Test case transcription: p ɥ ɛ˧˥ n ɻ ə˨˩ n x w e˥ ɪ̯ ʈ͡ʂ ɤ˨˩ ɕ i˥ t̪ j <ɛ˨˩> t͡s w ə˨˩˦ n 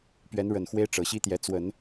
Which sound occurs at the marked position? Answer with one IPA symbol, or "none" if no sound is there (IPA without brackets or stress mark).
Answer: ɛ˧˥